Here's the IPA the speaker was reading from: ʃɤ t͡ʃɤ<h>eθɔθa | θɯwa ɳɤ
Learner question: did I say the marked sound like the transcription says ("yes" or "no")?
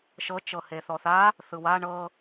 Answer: yes